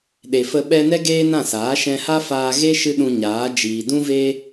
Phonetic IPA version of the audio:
ɗ e˨ f ə˧ ɓ ɛ˧ n ɛ˦ ɡ eː˦ n ã˦˨ s aː˨˦ ʃ ɛ̃˧ h a˦ f aː˧ ɣ e˦ ʃ ɨ˦ ɗ ũ˧ ɲ aː˨˦ d͡ʒ iː˨ d ũ˦ v e˦

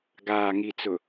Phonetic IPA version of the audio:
ɡ aː˨ ŋ i˨ t͡s ʊ˨

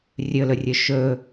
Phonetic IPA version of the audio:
rʲ ɵ l ɵ rʲ ɵ ʃ ɵ

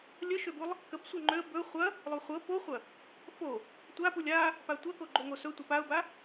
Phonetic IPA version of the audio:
lʲ ə ʃ ø b u lˠ | k ə b sʷ ɤ ŋ͡ǃ ø ə̯ b ɵ χʷ ɐ | lˠ u χʷ ɤ p o χʷ ɐ | f o | tʷ a p u lʲ a | p a tʷ ɐ k o ɡ͡ǃ o ŋ o s ɵ tʷ ɐ p a ʊ̯ b a

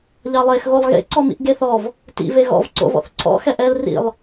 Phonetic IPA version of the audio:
ʎ ɑ lˠ e x ɣ o lˠ ɣ ḛ ǀ ɔ m ḭ ʔ ɡ e θ ɔ v | t ḭ v e ɣ ɔ̰ v ǀ o̰ v ɔ̰ θ ǀʰ ɔ̰ x ɛ ʔ ɛ l r ḭ lˠ

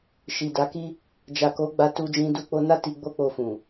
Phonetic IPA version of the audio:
ʃ i˨ d a˨˦ k i˦ | d͡ʒ a˨ k o˨˦ ɡ͡b a˧ t u˧ d͡ʒ ĩ˧ d u˧ k͡p o˧ n a˦ t i˧ ɡ͡b o˦ k͡p o˧ f ũ˨

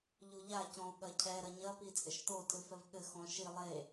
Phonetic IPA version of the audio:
ʎ u ʎ a c ɔ̃ u̯ ɠ ɐ cʰ ɛ ɾ ɐ ɲ ɐ p i t͡sʼ ɘ ʃ t̪ o tʼ ɨ f ɛ v ɠ ɘ x ɔ̃ ʃ i lˠ e

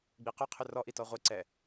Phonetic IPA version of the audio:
ɡ͡b i q ʏ qʰ ʏ r ɔ ʔ i t ɔ ʁʷ i ǀ ɛ

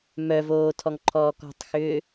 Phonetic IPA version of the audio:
m œ v oː tʰ ɔ ŋ ǃʰ ɔː k ɔ̤ tˤ x ʏː

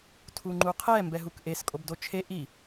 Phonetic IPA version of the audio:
tʰ u ŋ͡ǃ u qʰ ɛ m b ɛ ɦ u k ʔ e s kʼ o b d o t͡ʃʰ e ʔ i

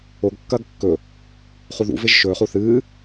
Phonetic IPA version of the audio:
o ɡ kː ɐː ɡ kː ɵ | χ u ð ṵ v e ʒ ʃ ɵː χ u θ ɨː

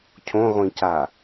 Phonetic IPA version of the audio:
cʰ õ ʁʷ ĩ c a

